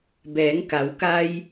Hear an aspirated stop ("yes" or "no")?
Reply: no